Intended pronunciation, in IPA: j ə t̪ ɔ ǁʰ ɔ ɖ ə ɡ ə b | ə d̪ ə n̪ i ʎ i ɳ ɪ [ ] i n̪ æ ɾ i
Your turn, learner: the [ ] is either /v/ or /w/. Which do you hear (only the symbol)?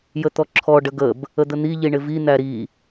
v